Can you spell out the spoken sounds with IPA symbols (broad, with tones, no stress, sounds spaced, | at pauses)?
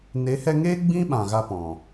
n e˨˦ h ɛ˧ ŋ eː˦ ɡ͡b ĩ˦ ɓ ã˨ ɣ a˧ p ɔ̃˨